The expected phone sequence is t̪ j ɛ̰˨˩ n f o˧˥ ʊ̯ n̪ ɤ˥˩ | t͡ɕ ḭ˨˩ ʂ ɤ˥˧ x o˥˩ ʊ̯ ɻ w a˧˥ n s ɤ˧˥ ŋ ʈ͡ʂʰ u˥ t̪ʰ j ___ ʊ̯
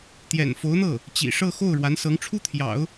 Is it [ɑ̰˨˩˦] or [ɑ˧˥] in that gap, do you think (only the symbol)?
ɑ̰˨˩˦